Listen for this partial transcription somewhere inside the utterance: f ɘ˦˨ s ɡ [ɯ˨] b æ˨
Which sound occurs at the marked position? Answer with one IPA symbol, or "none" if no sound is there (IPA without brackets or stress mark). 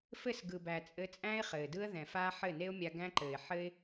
ɯ˨